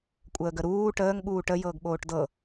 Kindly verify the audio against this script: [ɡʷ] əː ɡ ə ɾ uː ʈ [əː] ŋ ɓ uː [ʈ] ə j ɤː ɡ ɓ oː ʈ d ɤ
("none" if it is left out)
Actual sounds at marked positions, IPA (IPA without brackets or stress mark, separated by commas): kʷʼ, əː, ʈ